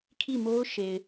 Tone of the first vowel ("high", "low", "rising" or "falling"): falling